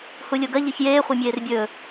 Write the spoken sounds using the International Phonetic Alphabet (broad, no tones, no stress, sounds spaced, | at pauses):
h u lʲ o ɡ ɐ ʎ e ç j eː χʷ e mʲ eː r bʲ ɵː